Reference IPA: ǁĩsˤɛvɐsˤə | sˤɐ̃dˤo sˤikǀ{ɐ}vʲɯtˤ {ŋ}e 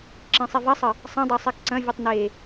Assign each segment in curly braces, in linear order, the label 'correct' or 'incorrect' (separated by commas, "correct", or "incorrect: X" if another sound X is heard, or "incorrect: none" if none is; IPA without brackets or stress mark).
incorrect: ɐ̃, incorrect: n